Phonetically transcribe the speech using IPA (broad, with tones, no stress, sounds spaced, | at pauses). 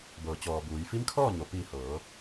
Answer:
b ɤː˩˧ t͡ɕ ɔː˩ b uː˩˧ j f i˧˥ m kʰ ɔː˥˨ ɲ o˩ p iː˧˩ h ɤː˩˧